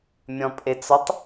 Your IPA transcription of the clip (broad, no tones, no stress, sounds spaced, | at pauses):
mʲ ɔ̃ pʼ e t͡s ɔ tˤ